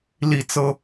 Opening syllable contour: falling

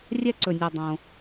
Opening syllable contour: high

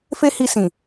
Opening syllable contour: high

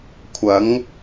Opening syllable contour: rising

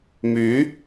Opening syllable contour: rising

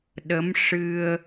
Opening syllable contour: rising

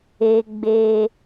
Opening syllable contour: high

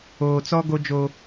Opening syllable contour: low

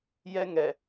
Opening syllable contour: high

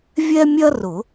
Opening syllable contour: high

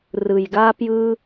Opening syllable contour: low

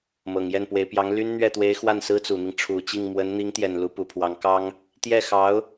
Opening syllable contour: low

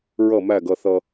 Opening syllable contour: falling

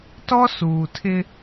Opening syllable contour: high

